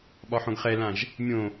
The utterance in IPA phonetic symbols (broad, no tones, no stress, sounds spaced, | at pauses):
ɓ ɒ ħ õ ɡ χ ɛ l ã ʒ | mʲ õ